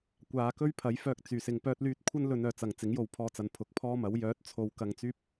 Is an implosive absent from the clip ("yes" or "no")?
yes